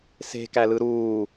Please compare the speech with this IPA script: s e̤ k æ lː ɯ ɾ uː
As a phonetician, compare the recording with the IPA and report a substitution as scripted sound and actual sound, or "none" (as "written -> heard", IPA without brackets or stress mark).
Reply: lː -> l